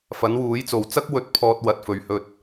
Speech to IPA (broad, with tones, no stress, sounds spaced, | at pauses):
f ɐ˨˥ n w uː˨˥ j t͡s o˨ w t͡s ɐ˥ k̚ w ɵ˨ t̚ pʰ ɔː˧ t̚ w ɐ˨ t̚ f ɵ˨˧ ɥ h ɵ˧ t̚